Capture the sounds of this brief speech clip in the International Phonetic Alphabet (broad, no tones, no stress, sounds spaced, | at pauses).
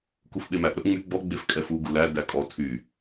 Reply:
k u f ɓ e m æ ʔ ɾ ɵ ʔ ŋ͡m y ɡ͡b ɔ ɡ͡b e f kʼ ɛ f u ɡ u l æ d æ kʼ ɔ tʰ y